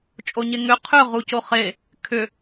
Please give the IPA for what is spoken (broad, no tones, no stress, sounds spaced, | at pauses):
t͡ʃʼ o ɲ e ŋ ʏ qʰ ʏ ʁ u c o χ e | kʰ ʏ